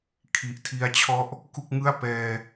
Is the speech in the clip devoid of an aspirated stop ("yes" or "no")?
no